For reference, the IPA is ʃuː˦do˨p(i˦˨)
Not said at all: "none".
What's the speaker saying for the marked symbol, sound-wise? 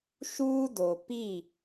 i˦˨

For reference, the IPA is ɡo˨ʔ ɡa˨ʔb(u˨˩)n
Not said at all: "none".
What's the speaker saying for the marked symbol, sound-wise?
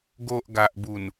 u˨˩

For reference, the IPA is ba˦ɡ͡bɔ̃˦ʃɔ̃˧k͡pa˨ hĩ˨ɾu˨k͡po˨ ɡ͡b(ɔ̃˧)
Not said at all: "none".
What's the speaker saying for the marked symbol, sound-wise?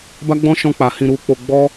ɔ˧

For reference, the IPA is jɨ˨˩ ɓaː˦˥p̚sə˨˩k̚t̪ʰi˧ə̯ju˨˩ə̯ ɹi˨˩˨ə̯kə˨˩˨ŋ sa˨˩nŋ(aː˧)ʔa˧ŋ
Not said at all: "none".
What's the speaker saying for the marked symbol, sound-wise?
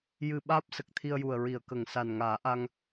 aː˨˩˦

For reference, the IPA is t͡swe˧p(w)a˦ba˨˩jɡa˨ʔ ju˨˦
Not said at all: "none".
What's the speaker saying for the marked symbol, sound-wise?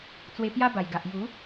j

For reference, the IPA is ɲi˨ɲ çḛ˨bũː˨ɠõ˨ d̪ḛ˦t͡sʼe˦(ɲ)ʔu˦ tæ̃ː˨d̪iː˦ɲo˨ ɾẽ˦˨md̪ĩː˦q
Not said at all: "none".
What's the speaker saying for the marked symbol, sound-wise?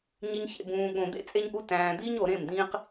ɲ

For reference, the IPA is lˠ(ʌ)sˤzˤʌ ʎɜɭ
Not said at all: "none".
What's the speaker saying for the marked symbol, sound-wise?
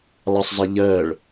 ʌ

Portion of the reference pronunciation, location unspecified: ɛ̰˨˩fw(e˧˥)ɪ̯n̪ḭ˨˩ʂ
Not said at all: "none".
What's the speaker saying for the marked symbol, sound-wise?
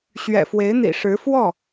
e˧˥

